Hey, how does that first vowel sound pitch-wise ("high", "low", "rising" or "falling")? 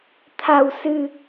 low